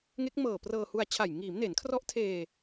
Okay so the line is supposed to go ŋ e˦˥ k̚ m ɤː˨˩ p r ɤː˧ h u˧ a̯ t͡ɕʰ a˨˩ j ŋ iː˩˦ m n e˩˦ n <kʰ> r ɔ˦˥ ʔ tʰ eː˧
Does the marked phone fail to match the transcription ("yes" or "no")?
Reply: no